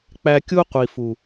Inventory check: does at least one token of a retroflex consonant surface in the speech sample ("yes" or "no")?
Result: no